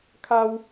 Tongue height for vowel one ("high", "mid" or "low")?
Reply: low